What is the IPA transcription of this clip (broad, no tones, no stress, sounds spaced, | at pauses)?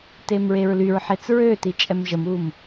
t e m ɹ e ɹ l y ɹ ħ e t͡s ɹ ø t i t͡ʃʼ ɛ m ʒ ə m uː m